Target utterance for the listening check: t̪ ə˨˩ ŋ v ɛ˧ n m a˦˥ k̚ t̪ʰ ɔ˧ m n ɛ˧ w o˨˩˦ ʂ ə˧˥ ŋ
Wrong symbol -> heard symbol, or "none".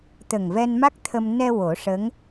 ɔ˧ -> ə˧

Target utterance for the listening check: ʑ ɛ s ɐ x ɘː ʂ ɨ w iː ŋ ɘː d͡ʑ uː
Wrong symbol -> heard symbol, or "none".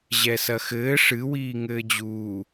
none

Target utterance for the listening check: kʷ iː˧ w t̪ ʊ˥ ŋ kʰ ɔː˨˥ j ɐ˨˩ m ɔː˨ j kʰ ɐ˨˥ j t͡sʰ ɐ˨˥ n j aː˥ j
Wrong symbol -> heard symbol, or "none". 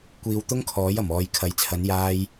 none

